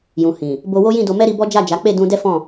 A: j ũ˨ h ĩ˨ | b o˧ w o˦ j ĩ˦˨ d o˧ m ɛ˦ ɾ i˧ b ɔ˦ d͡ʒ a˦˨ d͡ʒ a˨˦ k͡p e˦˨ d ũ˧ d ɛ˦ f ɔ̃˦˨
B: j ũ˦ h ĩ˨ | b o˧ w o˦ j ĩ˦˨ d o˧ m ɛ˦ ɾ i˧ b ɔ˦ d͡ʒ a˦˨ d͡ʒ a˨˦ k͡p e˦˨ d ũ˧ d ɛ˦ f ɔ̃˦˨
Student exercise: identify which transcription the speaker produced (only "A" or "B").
A